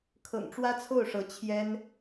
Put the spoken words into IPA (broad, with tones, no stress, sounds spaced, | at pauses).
kʰ ɤ̰˨˩ ŋ ʈ͡ʂ w ä˥ t͡sʰ o˥˩ ʊ̯ ʂ ɤ˧˥ t͡ɕʰ j ɛ˥ n